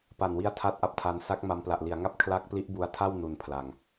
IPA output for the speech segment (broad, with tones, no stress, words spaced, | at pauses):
pa˨˩nwi˧a̯ tʰa˥˩t̚ʔa˦˥p̚tʰa˧n sa˦˥k̚ma˧mpla˨˩ʔ li˩˦a̯ŋa˥˩p̚ kʰla˦˥k̚pli˦˥ʔbu˧a̯tʰa˥˩w nu˩˦n pʰla˨˩ŋ